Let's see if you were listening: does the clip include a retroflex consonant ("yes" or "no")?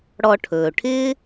yes